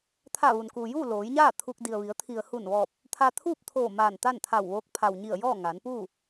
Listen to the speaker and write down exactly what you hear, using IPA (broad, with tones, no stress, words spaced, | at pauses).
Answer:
t̪ʰa˧˩ʋu˩nkuː˩juː˥˨ loː˩˧jɲaː˥˨ t̪ʰu˧k̚ di˩ə̯ʋi˩˧ə̯ t̪ʰi˩ə̯hu˧˩nʋɔː˧˩p̚ | t̪ʰa˧t̪ʰuː˥˨p̚t̪ʰoː˧˩ maː˧˩nt̪a˥˨nt̪ʰa˧˩wʋoː˧˥k̚ pʰa˩wɲi˧˩ə̯jɔː˥˨ ŋaː˩˧npuː˥˨